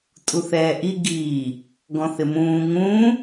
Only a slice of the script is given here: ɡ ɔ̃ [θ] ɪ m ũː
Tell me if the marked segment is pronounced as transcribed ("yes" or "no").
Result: yes